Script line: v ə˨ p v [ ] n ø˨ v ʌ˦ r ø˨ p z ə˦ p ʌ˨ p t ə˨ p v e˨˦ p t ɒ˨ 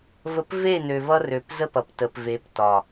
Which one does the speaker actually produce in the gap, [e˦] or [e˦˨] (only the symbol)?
e˦˨